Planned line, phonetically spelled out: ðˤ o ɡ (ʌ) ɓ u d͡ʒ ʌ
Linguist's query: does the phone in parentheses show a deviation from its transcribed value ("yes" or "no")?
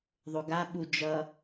yes